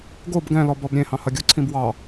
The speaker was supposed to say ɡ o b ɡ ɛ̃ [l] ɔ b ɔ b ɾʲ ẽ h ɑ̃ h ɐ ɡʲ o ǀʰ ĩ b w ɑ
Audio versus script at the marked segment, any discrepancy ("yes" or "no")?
no